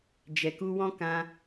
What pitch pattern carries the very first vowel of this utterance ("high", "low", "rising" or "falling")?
low